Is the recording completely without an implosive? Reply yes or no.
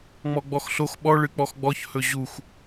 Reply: no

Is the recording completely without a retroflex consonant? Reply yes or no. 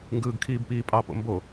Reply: yes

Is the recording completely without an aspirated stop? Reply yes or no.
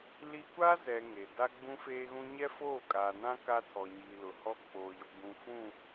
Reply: no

